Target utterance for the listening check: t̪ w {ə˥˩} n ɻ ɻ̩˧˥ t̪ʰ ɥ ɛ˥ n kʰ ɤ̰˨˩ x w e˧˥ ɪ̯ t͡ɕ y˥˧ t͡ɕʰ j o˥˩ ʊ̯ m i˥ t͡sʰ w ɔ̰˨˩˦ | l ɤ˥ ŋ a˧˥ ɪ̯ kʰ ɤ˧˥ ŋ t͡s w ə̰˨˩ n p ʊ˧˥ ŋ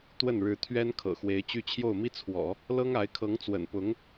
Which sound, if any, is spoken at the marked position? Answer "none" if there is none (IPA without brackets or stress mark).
ə˥˩